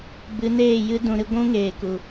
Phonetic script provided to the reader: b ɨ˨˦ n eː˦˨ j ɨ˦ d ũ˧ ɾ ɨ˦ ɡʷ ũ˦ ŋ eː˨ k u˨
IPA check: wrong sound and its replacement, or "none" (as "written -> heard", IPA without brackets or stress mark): none